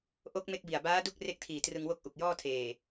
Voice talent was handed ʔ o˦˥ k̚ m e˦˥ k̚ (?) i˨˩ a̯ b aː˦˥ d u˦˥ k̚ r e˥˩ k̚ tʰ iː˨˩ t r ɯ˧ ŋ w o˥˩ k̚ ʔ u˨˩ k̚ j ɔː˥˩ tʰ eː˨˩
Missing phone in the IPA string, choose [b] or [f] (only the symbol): b